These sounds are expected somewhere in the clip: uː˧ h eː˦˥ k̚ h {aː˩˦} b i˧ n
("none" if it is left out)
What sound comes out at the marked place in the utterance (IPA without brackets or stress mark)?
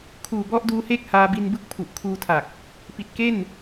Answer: aː˧